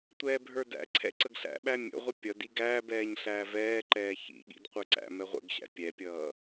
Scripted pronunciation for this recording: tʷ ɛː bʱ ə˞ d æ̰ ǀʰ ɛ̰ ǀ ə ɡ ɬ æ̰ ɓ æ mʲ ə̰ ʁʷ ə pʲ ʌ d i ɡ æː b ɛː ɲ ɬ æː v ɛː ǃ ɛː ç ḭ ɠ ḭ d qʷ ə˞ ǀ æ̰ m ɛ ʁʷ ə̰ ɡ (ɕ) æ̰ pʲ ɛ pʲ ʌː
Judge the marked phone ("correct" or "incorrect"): correct